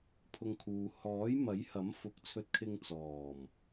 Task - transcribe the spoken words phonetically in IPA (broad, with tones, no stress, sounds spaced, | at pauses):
pʰ ʊ˧ ŋ kʰ uː˨ h ɔː˨˥ j m ɐ˨˥ j h ɐ˨˥ m f ʊ˨˥ k̚ t͡sʰ ɵ˧ t̚ kʰ ɪ˧ ŋ t͡s ɔː˨˩ m